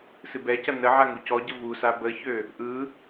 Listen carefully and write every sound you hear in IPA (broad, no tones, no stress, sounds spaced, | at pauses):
s ɨ b ɛ c ɐ n ə ʕ a ŋ u c ɔ ɟ ə v u s a b ə ç ø | ʔ ɯ